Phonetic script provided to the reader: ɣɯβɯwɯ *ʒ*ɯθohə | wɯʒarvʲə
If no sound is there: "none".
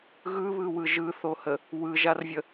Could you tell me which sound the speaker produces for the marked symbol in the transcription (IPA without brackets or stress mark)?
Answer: ʒ